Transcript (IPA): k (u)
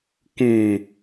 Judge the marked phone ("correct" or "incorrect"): incorrect